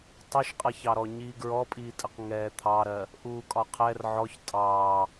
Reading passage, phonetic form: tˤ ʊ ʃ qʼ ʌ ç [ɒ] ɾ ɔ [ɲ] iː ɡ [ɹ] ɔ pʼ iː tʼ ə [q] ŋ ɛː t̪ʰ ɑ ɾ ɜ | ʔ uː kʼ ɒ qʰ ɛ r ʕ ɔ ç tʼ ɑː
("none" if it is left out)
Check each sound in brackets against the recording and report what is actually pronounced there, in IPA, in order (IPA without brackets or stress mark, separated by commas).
ɑ, ɲ, ɹ, q